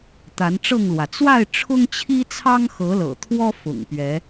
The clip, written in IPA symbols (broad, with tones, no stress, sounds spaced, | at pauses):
t̪ a˨˦ n ʈ͡ʂ ɤ˥˨ ŋ l w ä˩ t͡s w a˥˨ ɪ̯ ʈ͡ʂʰ ʊ˦ ŋ t͡ɕʰ i˦ t͡sʰ ɑ˦ ŋ x ɤ˨˦ l ɤ̰˨˩ t̪ʰ w ɔ˦ f ʊ̰˨˩ ŋ p ɥ ɛ˨˦